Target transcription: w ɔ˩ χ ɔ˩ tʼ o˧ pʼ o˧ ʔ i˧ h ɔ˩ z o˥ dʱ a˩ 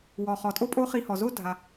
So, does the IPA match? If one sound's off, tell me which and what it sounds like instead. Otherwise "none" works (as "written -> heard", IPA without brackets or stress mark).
ʔ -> χ